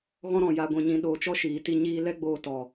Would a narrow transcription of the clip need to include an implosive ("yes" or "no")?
yes